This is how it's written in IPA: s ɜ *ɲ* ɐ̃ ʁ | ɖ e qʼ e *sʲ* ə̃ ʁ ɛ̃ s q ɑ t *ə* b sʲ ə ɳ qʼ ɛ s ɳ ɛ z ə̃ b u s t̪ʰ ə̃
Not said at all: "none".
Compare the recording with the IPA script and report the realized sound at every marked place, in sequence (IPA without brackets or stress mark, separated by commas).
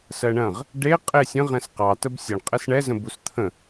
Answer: ɳ, sʲ, ə